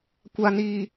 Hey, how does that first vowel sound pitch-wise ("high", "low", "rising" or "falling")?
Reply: low